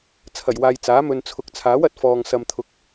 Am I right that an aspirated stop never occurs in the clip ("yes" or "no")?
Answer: no